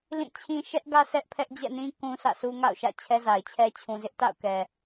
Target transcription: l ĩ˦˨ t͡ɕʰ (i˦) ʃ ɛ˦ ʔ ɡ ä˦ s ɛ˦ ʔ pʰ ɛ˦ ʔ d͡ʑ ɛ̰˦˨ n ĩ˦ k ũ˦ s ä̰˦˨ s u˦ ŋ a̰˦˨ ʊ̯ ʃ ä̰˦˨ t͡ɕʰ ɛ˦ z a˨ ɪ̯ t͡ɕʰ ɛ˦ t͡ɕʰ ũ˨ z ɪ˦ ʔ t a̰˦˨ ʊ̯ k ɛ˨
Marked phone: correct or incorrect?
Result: incorrect